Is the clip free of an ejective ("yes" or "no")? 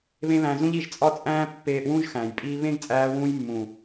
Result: no